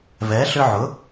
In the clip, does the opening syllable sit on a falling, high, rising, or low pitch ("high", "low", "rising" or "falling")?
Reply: rising